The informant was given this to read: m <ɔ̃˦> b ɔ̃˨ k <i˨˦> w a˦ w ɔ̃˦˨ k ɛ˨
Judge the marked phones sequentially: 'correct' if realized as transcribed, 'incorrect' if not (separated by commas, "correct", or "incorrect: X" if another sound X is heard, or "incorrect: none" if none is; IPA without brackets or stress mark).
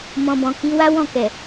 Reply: incorrect: ɔ̃˨, correct